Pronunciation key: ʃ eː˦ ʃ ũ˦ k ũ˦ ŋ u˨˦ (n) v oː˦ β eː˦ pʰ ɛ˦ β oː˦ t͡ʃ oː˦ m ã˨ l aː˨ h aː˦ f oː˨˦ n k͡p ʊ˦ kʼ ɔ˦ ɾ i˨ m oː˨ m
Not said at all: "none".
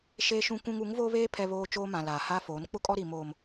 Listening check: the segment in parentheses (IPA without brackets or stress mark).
ŋ